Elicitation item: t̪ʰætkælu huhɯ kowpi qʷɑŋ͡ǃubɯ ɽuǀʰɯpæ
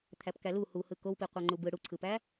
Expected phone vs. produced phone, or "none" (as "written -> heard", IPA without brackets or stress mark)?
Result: t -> p